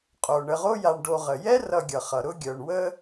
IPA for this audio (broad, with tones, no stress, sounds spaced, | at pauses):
qʼ o˩ ɳ ə˨ ʁ o˦ j a˨ ɳ ɖ o˨ ʁ ə˩ j ɛ˥ r ʌ˨ ɡʲ ʌ˩ χ ʌ˩ ɾ ʊ˦ ɡʲ œ˩ ɳ w ə˦